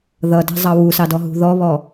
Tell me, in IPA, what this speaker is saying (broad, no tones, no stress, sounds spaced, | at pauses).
ð ʌ d æ̤ zˤ ɑ w u s ɑ d ɔ ɦ ṳ ð ɔ β ɔ